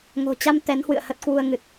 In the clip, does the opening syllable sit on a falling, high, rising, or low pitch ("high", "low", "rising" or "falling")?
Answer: low